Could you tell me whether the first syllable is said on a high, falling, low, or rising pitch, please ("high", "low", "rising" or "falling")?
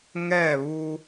falling